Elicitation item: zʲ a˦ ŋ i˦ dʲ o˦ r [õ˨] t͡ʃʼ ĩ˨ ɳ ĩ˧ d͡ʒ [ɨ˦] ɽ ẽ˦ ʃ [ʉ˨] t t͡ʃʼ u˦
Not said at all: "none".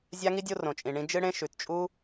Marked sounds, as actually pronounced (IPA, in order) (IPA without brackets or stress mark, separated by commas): õ˨, ɨ˦, ʉ˨